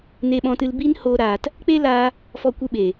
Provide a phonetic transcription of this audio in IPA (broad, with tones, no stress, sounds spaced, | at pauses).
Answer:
n e˧ ɓ ɔ̃˧ t ɨ˧ l b i˦ n h oː˧ ɾ aː˧ t | k͡p e˦ l aː˧ | f ɔ˧ kʷ ɨ˧ ɓ e˨